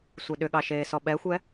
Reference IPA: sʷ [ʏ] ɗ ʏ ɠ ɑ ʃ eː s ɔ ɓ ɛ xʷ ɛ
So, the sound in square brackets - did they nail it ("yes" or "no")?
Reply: no